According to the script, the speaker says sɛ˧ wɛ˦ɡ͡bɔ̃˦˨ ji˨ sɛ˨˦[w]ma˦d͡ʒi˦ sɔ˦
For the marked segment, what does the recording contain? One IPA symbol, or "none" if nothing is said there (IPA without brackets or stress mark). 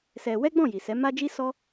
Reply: none